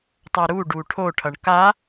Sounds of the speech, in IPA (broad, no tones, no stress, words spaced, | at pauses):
tˤʌɾu ɖuʈʰo ʈʰʌɳka